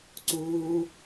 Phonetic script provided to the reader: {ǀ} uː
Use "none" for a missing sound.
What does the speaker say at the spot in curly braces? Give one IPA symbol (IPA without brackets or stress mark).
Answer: ǀ